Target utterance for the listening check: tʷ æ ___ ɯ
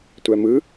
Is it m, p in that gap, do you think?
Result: m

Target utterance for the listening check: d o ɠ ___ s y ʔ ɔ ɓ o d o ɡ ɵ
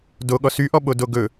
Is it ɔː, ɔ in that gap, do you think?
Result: ɔ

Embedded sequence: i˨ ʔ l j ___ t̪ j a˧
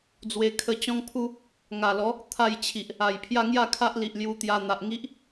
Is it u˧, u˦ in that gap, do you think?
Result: u˧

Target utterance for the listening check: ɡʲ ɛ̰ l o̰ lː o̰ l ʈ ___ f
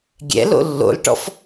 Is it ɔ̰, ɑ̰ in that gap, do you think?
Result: ɔ̰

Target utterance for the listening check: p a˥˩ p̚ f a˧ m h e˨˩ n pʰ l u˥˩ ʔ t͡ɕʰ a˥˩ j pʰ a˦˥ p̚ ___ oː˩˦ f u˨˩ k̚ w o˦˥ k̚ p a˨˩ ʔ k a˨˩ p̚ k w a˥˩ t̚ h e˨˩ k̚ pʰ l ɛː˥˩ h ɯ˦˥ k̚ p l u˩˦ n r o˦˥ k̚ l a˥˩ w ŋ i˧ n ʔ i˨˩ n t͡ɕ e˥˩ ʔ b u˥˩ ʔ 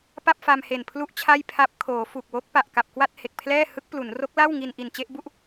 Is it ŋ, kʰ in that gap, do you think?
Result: kʰ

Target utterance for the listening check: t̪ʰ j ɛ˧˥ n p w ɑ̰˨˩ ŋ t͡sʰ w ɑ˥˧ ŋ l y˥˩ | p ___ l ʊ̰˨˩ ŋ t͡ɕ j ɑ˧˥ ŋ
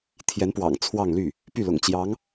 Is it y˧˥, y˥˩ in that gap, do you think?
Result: y˥˩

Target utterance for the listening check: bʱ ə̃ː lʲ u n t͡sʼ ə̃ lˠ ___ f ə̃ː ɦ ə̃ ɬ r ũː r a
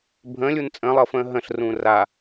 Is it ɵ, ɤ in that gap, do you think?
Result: ɤ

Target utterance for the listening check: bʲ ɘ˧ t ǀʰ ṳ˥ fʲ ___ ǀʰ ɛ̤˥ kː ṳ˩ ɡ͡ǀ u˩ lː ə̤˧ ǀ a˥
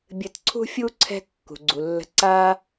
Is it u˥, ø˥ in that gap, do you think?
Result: u˥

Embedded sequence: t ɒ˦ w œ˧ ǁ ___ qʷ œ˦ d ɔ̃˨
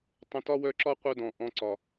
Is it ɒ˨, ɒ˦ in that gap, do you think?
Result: ɒ˦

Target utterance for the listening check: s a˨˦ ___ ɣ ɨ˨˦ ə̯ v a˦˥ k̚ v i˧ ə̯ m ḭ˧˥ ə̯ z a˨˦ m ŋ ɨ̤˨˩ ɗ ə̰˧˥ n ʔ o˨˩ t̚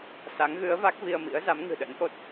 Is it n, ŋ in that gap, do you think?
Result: ŋ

